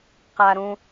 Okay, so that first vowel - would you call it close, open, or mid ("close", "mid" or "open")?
open